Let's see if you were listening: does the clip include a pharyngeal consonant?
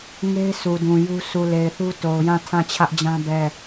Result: no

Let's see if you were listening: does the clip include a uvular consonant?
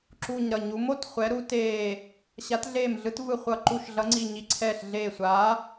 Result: yes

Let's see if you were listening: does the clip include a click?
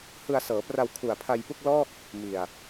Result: no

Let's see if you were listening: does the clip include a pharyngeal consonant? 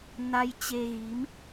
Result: no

